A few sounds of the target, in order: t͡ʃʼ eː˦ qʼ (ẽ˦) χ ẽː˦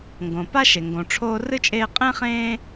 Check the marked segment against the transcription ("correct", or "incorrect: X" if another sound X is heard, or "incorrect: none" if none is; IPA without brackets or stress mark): correct